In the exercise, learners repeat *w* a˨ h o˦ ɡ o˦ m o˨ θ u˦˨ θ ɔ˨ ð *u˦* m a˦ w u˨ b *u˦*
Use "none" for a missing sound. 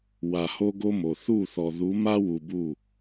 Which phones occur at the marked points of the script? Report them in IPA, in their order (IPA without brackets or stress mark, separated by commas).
w, u˨˦, u˦˨